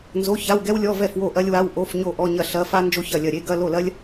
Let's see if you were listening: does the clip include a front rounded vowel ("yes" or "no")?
no